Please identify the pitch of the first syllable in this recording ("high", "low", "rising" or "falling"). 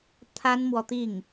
high